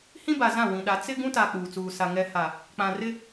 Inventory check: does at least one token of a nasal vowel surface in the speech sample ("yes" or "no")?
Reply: yes